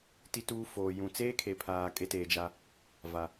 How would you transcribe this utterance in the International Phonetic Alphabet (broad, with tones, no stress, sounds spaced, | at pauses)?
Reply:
t i˦ t uː˦ f oː˨ j ũ˨ t͡s eː˦ kʰ e˨ pʰ aː˨ kʼ e˦ t eː˨ d͡ʒ a˦ | v a˨